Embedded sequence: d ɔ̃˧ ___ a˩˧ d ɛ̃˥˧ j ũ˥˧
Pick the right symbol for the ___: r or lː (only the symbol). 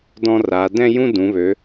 r